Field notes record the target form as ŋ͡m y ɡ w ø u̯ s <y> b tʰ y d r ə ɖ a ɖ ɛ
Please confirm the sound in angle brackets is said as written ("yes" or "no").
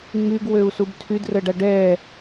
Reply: no